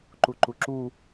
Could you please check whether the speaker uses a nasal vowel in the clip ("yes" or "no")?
no